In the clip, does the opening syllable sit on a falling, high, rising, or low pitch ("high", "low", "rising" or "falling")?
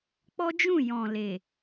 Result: high